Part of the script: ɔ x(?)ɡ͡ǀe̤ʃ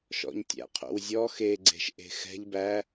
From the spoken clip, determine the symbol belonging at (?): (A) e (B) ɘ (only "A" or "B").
A